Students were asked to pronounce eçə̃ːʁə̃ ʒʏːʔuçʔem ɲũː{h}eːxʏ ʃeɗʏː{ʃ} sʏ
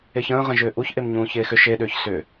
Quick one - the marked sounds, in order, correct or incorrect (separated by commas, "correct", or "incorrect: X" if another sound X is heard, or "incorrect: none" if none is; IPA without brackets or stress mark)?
incorrect: ç, incorrect: ç